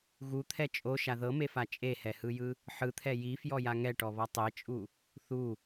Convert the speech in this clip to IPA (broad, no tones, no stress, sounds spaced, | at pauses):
ɣ u t̪ʰ ɛ t͡ʃʼ o ʃ a ð ɤ m e f a t͡ʃʼ e h ɛ h ɯ j ɯ | ħ ɯ t̪ʰ ɛ j i f j ɔ j a ŋ ɛ ʈ ɔ β ɔ tˤ e t͡ʃʼ u | θ u